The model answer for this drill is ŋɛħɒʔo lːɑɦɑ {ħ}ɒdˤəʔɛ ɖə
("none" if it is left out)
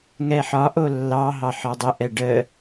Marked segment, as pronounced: ħ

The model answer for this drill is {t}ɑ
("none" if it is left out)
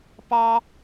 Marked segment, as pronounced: p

